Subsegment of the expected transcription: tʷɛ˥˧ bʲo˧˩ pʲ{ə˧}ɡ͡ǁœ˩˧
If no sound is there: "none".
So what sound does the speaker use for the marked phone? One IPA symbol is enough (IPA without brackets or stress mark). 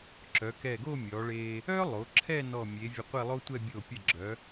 ə˧˩